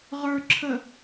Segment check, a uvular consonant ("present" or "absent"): present